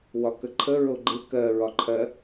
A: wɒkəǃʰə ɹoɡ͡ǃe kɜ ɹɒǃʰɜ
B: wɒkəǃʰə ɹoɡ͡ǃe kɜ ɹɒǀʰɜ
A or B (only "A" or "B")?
A